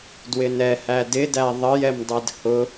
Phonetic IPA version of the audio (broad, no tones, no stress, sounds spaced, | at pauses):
d w ɪ n ɛ h æ d ɪ d æ ðˤ ə j ɛ m dˤ ɛ d h ʊ